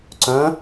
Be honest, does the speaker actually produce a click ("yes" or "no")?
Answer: yes